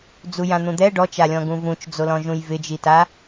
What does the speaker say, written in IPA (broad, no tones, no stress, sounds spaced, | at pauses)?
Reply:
d͡z u j ã n̪ ũ d̪ ɛ ɖ ɔ t͡ʃ a lʲ ɔ̃ ɡ ũ v ũ t͡ʃ d͡z o l ɔ̃ ʒ ũ j v ɪ d͡ʒ i t a